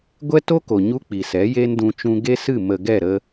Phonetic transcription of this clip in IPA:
ɡʷ ɛ˦ t o˦ k o˨ ɲ u˦ k͡p i˨ s ɛ˨˦ j e˦ n d ũ˧ t͡ʃ ũ˧ ɡ e˦ s ɨ˦˨ m ə˨ ɡ ɛ˦˨ ɾ ə˧

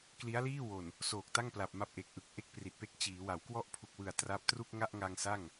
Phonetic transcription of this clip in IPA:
k l i˦˥ a̯ l iː˥˩ w o˨˩ n | s oː˨˩ k̚ t a˥˩ ŋ p l a˨˩ p̚ m a˦˥ p̚ ʔ e˨˩ k̚ ʔ ɯ˨˩ k̚ ʔ e˥˩ k̚ p r i˨˩ t̚ p e˦˥ k̚ t͡ɕ iː˩˦ w a˩˦ w k w ɔ˥˩ ʔ pʰ u˨˩ k̚ w ɯ˨˩ a̯ t r a˦˥ p̚ t r u˥˩ k̚ ŋ a˥˩ ʔ ŋ a˧ ŋ s a˥˩ ŋ

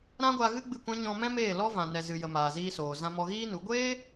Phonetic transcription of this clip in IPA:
ɾ ã˦ ɡʷ a˧ ɣ ɨ˦ ɡ͡b ɨ˦˨ kʷ ã˦ ɲ ɔ̃˧ m ɛ̃˦ m eː˦˨ l ɔ˦ v ã˨ n ɛ˨ z ɨ˨ j ə˨ m aː˨ z iː˧ s oː˨ z ã˧ m ɔ˧ ɣ iː˦ n u˨˦ ɡʷ eː˦

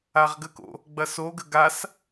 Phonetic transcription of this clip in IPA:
a ʁ ɡ ə k o̰ | ɡ͡b ɐ s o ɡ ə ɡ a s

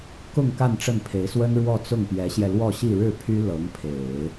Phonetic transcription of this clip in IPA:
k ʊ˥˧ ŋ k a˥˧ n ʈ͡ʂ ə˥˩ n pʰ e˧˥ ɪ̯ s w ə˥ n ɻ w ɔ˥˧ t͡s ʊ˥˩ ŋ p j ɛ˧˥ ɕ j ɛ˧ l w ɔ˥˧ ɕ i˥˧ ɻ ɻ̩˥˩ pʰ y˥ l ɤ˧˥ ŋ pʰ e˨˩˦ ɪ̯

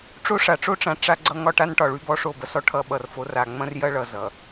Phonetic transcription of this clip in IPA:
ʈ͡ʂ o˦ ʂ a˨ ʈ͡ʂ o˦ ʈ͡ʂ ã˨ ʈ͡ʂ a˦ ɡ͡ǀ ʌ˦ ŋ ɒ˦ ʈ a˦ n ʈ ɒ˨ ɭ y˦ b ɔ˦ ʂ o˦˨ b ɐ˦ s ɔ˦ ʈʰ ʌ˦˨ ɓ ʌ˨ r f o˨˦ r a˨ ŋ͡m ɐ̃˦ r j ɐ˦ ɭ ʌ˨ z ʌ˨

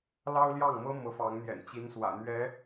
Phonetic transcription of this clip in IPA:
l ɑ˥ ʊ̯ l j ɑ˥˩ ŋ m ɤ˥ m ɤ˧˥ f ɑ˧˥ ŋ n̪ j ɛ̰˨˩ n t͡ɕ i˧˥ n s w ä̰˨˩ n̪ ɥ ɛ˧˥

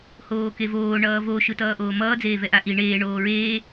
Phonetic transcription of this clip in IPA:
h oː k e v oː ɳ ʌː v o ʃ ɯ t ʌː ʔ oː m ʌː d͡z eː v ɛ ʔ a ʔ i ɳ eː ɳ oː ɹ eː

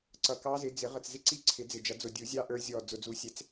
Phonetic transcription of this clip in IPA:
ǀ ʌ˨˩ k ɑ˦˥ z ɪ˨˦ d͡z ɪ˨˩˦ ʁ ə˨˩ t͡s z ɪ˦˥ ǀ i˦˥ ǀʰ ɪ˨˩˦ d͡z ɪ˨˩ d͡ʒ ʌ˨˩˦ d͡z ʊ˨˩ dʲ u˨˩˦ zʲ ɑ˦˥ ʔ ə˞˦˥ zʲ ɔ˨˩ d͡z ʊ˨˩ d͡z u˨˦ sʲ ɛ˨˦ t͡s

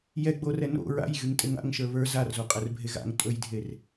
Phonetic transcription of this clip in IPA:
j ɛ ɡ͡b o r ɛ n o̰ ɹ a̰ j ɣ y ŋ tʼ e ŋ a̰ ŋ ʃ ə˞ β ə˞ z a r z o qʼ ɛ r bʱ e ɣ a̰ ŋ tʼ ɵ j dʱ e r

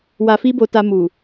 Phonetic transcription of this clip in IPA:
w a˧ f i˦ b o˧ t a˧ m u˨

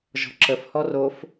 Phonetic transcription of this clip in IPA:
ʒ ɔ̤ ǁ ə f h ɔ r o f

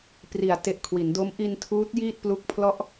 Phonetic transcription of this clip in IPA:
p r i˩˦ a̯ t e˨˩ ʔ kʰ w i˩˦ n d o˦˥ m ʔ i˧ n tʰ uː˦˥ t̚ j iː˥˩ t̚ p l u˦˥ k̚ pʰ l ɔ˥˩ ʔ

